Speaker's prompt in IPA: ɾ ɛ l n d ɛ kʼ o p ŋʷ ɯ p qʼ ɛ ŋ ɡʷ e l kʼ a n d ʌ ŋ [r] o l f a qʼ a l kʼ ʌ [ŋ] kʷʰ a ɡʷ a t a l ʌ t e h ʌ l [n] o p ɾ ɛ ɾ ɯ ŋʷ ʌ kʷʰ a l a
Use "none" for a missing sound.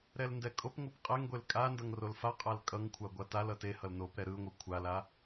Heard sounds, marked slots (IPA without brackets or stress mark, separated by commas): r, ŋ, n